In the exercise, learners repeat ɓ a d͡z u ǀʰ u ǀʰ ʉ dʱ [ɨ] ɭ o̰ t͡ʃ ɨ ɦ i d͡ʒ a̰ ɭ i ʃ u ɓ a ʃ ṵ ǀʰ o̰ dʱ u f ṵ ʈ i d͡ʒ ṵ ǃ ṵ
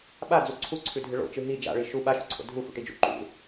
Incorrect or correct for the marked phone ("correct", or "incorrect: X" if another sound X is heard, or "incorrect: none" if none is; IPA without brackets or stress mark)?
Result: correct